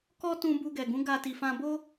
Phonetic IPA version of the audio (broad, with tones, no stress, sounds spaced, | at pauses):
k ɔ˦ t ũ˧ b u˧ ɡ ɛ˨ ɡ ũ˨˦ ɡ a˧ t i˨ f ã˧ b o˦